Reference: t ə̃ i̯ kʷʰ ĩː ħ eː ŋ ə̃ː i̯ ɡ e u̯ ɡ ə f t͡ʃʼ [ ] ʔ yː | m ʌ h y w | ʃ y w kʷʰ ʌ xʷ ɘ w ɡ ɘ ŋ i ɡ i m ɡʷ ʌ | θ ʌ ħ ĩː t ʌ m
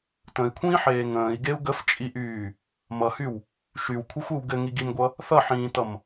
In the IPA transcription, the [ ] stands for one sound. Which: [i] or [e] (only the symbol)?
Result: i